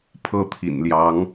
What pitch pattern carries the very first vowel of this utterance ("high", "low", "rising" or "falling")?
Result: high